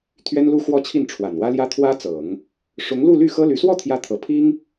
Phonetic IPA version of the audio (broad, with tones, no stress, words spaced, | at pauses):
t̪ʰɥɛ˥nlu˥xwɔ˥˧ t͡ɕʰi˥˩nʈ͡ʂʰwa˨˩nwä˥ljä˥ t̪ʰwä˥t͡sɤ˨˩˦ŋ | ʂʊ˧˥ŋlu˥˧ly˥˩ xɤ˥ly˧˥ swɔ˥˩t̪ʰjä˧˥t̪ʰɤ˨˩ pʰi˥ŋ